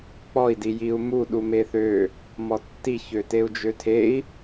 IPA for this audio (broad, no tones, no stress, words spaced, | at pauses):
k͡pɔi̯di jiu̯mu ɗumeθø | mɔtːiçø teu̯d͡ʒøtʰei̯